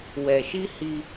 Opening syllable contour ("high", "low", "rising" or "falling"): low